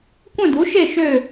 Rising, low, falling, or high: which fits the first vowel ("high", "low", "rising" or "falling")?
falling